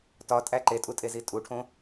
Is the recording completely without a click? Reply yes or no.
no